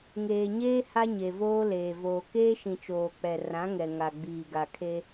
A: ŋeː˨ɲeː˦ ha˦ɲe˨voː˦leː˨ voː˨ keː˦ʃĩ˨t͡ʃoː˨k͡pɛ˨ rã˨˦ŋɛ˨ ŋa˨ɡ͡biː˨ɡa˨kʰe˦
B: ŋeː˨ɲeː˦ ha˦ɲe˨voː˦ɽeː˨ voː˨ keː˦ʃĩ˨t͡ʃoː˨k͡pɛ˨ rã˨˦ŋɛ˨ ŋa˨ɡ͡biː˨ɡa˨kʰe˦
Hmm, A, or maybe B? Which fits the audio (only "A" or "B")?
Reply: A